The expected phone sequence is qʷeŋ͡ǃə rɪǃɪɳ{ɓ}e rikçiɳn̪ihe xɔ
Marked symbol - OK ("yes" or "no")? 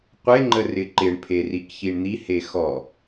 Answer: no